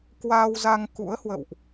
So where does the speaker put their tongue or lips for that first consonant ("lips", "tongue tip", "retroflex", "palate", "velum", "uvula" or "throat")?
velum